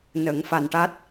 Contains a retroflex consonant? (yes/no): yes